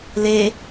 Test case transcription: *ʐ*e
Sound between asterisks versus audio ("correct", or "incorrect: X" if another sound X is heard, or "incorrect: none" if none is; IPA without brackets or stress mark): incorrect: l